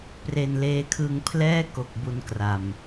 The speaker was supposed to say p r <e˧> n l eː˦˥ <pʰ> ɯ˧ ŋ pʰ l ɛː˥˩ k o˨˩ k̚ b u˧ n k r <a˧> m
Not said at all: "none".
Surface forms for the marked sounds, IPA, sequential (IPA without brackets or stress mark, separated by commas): e˧, kʰ, a˨˩